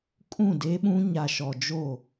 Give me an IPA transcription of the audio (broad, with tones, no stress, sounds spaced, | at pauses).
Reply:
kʼ ũ˦˨ d eː˦ ɓ ũ˦ ɲ a˨ ʃ ɔ˨ d͡ʒ o˦˨